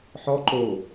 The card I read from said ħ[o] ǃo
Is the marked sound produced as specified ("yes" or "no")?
no